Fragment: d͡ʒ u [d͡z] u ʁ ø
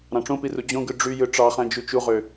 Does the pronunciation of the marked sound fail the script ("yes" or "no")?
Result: yes